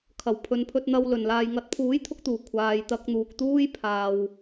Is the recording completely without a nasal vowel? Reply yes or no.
yes